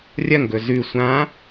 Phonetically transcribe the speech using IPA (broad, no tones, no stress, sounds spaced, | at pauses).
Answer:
rʲ ɐ ŋ ɡ ɵ z ʉ sʷ ã